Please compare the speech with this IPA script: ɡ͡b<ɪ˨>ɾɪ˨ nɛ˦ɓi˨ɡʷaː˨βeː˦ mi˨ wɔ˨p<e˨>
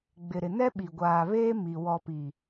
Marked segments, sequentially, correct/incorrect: correct, incorrect

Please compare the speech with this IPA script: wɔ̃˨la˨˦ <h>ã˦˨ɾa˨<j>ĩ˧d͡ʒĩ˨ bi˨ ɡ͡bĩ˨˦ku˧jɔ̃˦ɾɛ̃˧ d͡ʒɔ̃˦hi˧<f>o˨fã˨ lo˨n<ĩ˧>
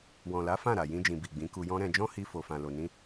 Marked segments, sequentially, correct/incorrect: incorrect, correct, correct, correct

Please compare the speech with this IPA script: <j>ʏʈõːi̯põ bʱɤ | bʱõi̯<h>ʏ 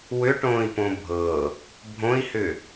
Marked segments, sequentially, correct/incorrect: incorrect, correct

